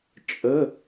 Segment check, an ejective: present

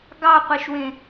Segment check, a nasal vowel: present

